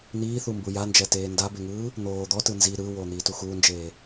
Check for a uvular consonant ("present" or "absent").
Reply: absent